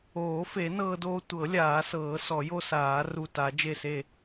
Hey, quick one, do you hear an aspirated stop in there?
no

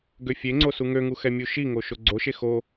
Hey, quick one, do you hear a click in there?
yes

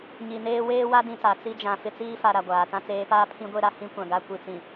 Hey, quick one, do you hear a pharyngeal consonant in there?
no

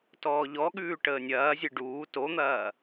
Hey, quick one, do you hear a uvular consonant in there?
no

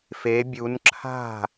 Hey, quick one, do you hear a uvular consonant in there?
no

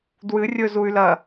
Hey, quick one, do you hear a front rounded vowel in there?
yes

